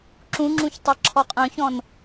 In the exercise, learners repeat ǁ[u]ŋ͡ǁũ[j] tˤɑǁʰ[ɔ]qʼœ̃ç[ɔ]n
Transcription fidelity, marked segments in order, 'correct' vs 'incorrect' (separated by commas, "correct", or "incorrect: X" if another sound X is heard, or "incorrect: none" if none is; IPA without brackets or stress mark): incorrect: ũ, incorrect: ç, correct, incorrect: ɔ̃